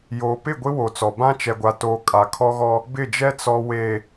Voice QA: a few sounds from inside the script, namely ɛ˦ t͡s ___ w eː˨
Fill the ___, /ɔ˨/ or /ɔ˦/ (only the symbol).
ɔ˨